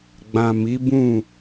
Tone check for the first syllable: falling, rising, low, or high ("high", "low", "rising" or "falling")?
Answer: low